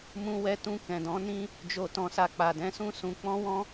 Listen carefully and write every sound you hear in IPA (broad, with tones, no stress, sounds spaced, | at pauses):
m ũ˧ w ɛ˧ t ũ˧ k ɛ̃˨ d ɔ̃˨˦ n ĩ˦ | d͡ʒ o˨ t ɔ̃˨ s a˨ k͡p a˨ d ɛ̃˨˦ s ũ˦ s ũ˧ k͡p ɔ̃˦ w ɔ̃˦